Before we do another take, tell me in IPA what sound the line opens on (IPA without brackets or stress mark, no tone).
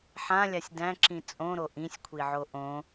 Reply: ħ